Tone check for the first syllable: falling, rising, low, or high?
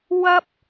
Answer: high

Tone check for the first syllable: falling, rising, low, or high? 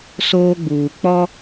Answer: high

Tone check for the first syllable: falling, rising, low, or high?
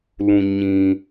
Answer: low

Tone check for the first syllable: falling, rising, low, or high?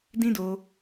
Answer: high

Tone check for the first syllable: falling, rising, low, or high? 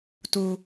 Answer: low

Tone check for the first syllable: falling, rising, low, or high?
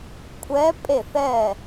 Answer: rising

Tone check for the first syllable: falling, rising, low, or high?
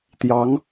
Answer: rising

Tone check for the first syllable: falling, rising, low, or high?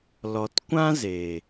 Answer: low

